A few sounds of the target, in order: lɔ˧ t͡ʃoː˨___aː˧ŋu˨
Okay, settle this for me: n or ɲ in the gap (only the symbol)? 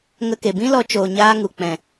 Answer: ɲ